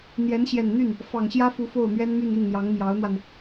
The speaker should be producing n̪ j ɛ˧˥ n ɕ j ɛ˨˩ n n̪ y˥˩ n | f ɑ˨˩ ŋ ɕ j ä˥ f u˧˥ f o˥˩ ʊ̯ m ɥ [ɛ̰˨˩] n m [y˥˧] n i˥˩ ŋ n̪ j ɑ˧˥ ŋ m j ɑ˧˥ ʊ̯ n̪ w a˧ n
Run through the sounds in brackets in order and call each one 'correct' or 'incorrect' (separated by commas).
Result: incorrect, correct